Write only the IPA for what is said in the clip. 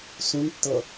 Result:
s ũ n tː ɤ

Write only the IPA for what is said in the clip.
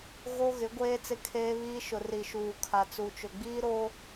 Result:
ɣ o˦ ɣ ɪ˨˦ ɡʷ eː˦ t͡s ɪ˦ kʰ eː˦ β iː˦ ʃ ʊ˨ r i˨ ʃ uː˨ kʰ a˨ t͡s u˨ t͡ʃ ʊ˨ ɡ͡b iː˦ ɾ o˦

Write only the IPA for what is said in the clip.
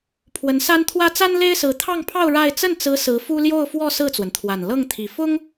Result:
pʰ w ə˧˥ n s a˥ n t̪ʰ w ä˥ t͡s a˥ n l e˥ ɪ̯ s ɹ̩˧˥ t̪ʰ ɑ˥˧ ŋ pʰ ɑ˥˧ ʊ̯ ɻ a˥˧ ɪ̯ t͡s ə˥˩ n t͡s ɹ̩˧˥ s ɹ̩˧˥ f u˥ l j o˥˧ ʊ̯ f w ɔ˥˧ s ɹ̩˥˩ t͡s w ə˩ n t̪ʰ w a˨˩ n l ɤ˥˩ ŋ t̪ʰ i˨˩ f ʊ˥ ŋ

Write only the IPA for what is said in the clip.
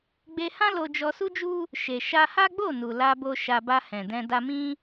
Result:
ɡ͡b e˧ h ã˦ l o˧ d͡ʒ ɔ˧ s u˦ d͡ʒ u˦ | ʃ e˨ ʃ a˧ h a˦ ɡ͡b o˦˨ n u˨ l a˧ b o˧ ʃ a˧ b a˧ h ɛ̃˨ d ɛ̃˧ d a˧ m ĩ˦

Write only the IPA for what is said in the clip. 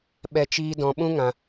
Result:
ɓ ɛ˦ t͡ʃ iː˦ d ɔ̃˧ ɓ ũ˦ ŋ ã˧

